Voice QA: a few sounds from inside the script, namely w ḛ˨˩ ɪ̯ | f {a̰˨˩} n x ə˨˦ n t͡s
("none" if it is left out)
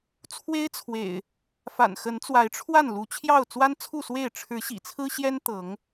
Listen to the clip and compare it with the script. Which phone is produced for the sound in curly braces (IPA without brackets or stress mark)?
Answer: a̰˨˩